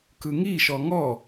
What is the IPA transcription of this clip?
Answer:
k ɯ ŋ i ʃ ɔ ŋ ɔ

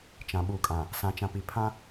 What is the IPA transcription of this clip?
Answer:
t͡ʃ ã˨ ɓ uː˨ kʼ ã˨ | s ã˨ t͡ʃ ã˨ p i˨ pʰ ã˦

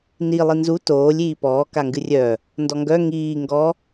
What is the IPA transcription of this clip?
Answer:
n i lˠ i n z u t oː lʲ iː p ɔː k a ŋ ɡ ɨ rʲ œ | n d ɔ ŋ ɡ œ ŋ iː ŋ ɡ ɔ

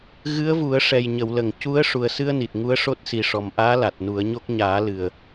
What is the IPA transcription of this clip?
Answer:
ɣ ɨ˧˥ ə̯ v u˨˩˦ ə̯ ʂ ɛ˨˩ j ɲ ə˨˩˨ w l ə˨˩˨ ŋ c u˧˥ ə̯ ʂ u˨˩ ə̯ s ɨ˧ ə̯ n i˨˩ t̚ ŋ u˧˥ ə̯ ʂ o˦˥ t̚ s i˨˩ ʂ ɔ˨˩ m ʔ aː˧˥ l a˨˩ t̚ n u˨˩˦ ə̯ ɲ o˦˥ k̚ ɲ aː˨˩˦ l ɨ˨˩ ə̯

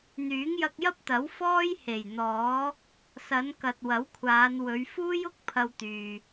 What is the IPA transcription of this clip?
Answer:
n̪ yː˨˥ ŋ j ɐ˧ k̚ j ɐ˥ p̚ t̪ ɐ˨˥ w f ɔː˥ j h e˨˩ j n̪ ɔː˨˥ | s ɐ˨˧ n k ɐ˨ t̚ w ɐ˨˥ w kʷʰ aː˨˧ n w ɵ˨˧ ɥ f uː˥ j ʊ˥ k̚ pʰ ɐ˧ w t̪ yː˨

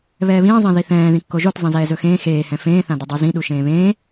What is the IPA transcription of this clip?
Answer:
β ɛː β ĩː zˤ ẽ ð i θ ɛ̃ː ð ĩ kː o ʒ o t zˤ ẽ z ɛː z ɵ x ẽː x eː h ɛ̃ f ẽː θ ã d ɵ dˤ u z ĩ ɗ u ʃ ẽː β ẽː

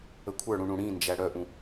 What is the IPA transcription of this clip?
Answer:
ə kʷʰ ə˞ ɽ ũ ɳ ũ ɽ ĩ n d͡ʒ æ ɽ œ ʔ ũ

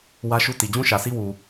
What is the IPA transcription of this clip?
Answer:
w ä˦ ʃ u˦ t i˨ d͡ʑ ũ˦ ʃ ä˨ sʰ i˦ w u˨

